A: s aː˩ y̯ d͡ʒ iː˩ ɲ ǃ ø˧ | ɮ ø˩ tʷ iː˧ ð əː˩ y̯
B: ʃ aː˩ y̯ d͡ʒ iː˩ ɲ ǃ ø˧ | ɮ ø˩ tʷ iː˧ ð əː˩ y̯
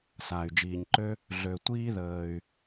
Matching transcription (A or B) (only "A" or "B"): A